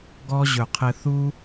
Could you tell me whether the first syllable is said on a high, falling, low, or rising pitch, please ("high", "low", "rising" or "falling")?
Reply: high